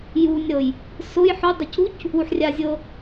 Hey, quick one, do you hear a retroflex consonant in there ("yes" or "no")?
no